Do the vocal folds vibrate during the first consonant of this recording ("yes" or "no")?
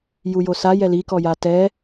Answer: yes